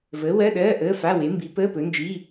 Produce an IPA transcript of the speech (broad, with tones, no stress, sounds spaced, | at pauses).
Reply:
v əː˨˥ w ɜ˧˥˧ ɗ ɜː˧˥˧ ʔ əː˧˥˧ f a˧˥˧ w e˨˥ m b i˨˥ p əː˧˥˧ p ɵ˨˥ n d͡ʒ i˧˥˧